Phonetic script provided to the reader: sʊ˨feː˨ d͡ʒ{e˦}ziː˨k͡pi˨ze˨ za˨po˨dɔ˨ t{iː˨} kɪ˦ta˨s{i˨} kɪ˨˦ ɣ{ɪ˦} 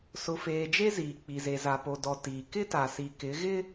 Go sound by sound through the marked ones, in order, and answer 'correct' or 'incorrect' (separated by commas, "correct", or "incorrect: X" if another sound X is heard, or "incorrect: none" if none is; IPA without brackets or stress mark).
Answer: correct, correct, correct, correct